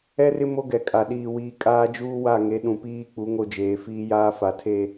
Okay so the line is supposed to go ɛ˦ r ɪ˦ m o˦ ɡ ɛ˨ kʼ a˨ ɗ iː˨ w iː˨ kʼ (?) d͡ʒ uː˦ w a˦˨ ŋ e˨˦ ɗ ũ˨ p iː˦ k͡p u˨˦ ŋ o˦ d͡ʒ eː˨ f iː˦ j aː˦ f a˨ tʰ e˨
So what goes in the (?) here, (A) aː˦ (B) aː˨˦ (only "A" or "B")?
A